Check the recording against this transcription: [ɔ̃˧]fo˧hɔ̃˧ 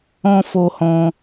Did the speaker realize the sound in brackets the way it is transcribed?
yes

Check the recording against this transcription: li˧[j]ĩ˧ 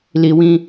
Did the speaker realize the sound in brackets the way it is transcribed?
no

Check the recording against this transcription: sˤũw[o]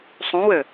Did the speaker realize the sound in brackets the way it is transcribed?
no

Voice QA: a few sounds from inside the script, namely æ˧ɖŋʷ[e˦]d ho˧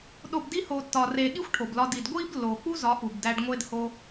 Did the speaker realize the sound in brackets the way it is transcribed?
yes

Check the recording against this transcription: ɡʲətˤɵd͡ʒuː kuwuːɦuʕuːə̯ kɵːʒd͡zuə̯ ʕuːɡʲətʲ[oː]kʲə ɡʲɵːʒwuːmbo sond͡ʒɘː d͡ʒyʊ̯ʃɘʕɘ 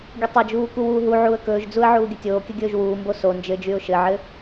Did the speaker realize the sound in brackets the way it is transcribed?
yes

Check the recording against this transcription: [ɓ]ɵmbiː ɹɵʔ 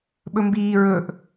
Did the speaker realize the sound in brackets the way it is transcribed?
yes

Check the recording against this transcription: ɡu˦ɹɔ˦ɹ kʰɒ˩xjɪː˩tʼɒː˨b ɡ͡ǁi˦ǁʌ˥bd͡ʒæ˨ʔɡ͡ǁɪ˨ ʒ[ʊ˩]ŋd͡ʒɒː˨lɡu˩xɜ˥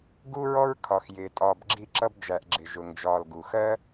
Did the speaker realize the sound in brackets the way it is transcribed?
yes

